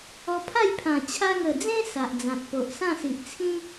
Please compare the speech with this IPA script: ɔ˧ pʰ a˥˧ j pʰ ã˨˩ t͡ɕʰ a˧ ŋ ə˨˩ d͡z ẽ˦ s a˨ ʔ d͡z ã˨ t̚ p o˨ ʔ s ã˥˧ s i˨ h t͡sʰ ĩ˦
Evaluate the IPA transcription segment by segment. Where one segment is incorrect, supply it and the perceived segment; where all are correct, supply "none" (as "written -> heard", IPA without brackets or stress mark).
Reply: h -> ʔ